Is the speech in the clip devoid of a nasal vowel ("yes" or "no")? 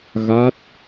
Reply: yes